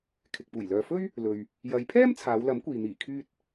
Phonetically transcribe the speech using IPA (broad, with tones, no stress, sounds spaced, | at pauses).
kʰ ɪ˨ k̚ p uː˨˩ j l œː˨ f ɵ˥ ɥ | l ɵ˨ ɥ | j ɐ˨˧ j pʰ ɛː˥ m t͡sʰ aː˨˧ w l ɐ˨˥ m kʷ iː˨ n̪ iː˨˩ kʰ yː˧ t̚